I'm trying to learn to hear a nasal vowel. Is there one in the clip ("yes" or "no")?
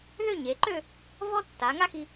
no